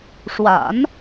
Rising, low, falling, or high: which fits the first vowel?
low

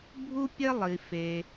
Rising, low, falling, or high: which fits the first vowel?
high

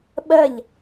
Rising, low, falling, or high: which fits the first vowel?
falling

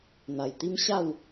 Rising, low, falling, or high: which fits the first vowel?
low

